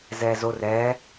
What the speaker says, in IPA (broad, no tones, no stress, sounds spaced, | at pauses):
z ɛː z o r ɛː